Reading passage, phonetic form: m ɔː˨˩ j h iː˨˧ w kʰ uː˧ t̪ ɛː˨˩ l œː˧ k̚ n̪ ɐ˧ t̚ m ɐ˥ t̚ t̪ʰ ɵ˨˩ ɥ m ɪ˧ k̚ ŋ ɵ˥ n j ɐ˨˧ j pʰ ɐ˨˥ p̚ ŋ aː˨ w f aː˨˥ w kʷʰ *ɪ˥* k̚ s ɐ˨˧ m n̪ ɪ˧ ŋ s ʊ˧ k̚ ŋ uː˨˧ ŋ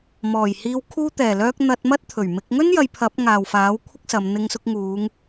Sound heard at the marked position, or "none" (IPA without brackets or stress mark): ɪ˥